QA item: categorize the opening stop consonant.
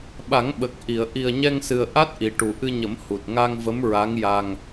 implosive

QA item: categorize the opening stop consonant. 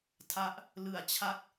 aspirated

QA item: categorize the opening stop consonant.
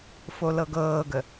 plain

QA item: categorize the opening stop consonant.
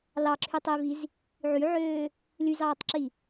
click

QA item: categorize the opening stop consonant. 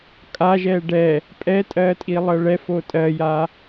ejective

